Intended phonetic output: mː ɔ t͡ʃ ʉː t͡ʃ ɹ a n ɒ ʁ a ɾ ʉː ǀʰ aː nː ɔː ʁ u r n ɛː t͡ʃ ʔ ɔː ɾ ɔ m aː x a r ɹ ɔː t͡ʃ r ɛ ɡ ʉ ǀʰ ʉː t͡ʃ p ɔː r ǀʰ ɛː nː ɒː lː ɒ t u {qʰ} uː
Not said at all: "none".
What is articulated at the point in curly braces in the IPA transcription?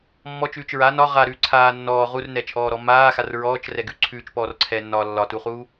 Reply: χ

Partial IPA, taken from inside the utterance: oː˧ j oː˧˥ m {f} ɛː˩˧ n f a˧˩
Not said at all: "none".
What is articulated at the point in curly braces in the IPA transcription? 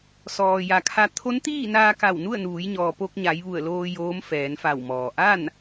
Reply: f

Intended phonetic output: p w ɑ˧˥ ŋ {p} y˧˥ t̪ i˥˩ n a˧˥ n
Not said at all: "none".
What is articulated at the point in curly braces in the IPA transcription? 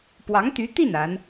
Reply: t̪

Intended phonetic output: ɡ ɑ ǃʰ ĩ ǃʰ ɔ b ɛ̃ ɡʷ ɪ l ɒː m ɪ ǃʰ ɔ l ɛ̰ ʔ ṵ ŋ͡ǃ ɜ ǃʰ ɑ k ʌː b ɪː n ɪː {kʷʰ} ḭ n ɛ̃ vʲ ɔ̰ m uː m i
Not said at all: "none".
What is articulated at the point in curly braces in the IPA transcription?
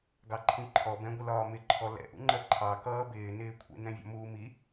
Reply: kʷʰ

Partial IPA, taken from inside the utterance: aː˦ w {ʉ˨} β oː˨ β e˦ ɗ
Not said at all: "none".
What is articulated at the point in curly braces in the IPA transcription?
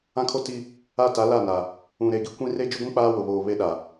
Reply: ʊ˨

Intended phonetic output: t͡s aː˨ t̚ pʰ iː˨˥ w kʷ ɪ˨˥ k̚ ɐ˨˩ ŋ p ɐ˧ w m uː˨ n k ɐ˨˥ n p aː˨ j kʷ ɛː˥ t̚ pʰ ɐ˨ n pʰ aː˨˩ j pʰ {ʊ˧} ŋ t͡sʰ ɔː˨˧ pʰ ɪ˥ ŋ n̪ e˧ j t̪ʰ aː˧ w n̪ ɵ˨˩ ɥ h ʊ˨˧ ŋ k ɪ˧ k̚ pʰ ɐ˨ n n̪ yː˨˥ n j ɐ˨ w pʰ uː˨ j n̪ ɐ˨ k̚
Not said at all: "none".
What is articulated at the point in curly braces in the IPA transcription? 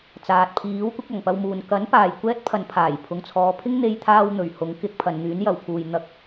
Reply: ʊ˨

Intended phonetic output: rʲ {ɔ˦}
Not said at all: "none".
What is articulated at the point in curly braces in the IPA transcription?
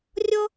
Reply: ɔ˦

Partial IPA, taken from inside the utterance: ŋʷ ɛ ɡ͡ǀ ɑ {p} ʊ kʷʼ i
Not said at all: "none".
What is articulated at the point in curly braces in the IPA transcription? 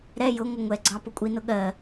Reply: p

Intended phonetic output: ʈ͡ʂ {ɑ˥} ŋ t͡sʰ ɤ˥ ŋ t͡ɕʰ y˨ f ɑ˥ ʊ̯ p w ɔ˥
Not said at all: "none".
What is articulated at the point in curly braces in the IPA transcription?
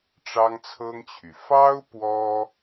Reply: ɑ˥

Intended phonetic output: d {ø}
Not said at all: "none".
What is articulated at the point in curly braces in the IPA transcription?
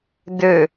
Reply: ø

